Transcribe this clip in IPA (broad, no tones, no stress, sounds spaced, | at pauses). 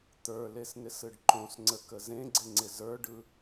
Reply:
t̪ ə˞ l e s n ɪ s ɯ ɖ ǃ õ s ŋ͡ǀ ə k ə z ẽ ɡ͡ǀ ɪ ŋ͡ǀ ɪ z ə˞ ɖ ɯ